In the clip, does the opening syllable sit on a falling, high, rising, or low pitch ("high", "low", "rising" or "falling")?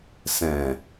low